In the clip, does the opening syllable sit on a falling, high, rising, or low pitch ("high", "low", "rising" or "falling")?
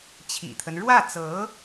low